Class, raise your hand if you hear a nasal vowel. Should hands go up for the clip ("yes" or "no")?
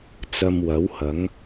no